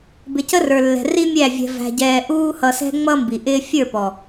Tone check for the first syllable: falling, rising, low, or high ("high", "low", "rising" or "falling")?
low